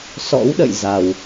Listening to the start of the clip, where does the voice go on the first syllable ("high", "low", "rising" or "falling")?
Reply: rising